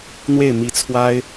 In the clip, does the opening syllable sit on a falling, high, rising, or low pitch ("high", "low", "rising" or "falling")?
falling